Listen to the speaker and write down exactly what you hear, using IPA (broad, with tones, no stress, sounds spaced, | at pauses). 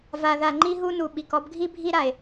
v a˨ ð a˨ ŋ͡ǃ i˦ ɦ u˦ n u˩ ɓ i˩ k ɔ˦ b ɡʱ i˥ bʱ i˥ ɾ a˩ e̯